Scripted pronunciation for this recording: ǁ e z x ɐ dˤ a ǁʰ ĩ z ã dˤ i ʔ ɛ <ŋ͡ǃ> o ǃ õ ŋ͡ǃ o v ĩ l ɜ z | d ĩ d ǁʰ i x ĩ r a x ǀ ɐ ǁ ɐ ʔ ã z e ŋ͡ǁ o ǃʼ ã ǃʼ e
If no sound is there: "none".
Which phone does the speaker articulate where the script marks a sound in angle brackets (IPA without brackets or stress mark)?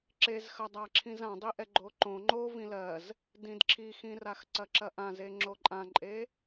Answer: ɡ͡ǃ